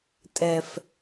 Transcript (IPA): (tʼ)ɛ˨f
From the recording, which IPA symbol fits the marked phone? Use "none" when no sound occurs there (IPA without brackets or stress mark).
tʼ